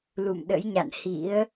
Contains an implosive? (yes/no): yes